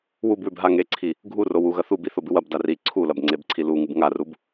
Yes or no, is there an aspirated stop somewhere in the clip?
yes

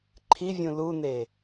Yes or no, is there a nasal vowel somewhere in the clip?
yes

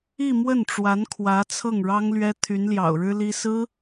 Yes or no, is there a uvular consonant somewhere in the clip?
no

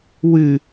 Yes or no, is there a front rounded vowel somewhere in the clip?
no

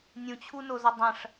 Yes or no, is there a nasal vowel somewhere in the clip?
yes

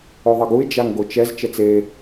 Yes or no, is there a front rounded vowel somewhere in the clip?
no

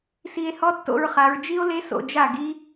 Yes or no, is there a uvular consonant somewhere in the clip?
yes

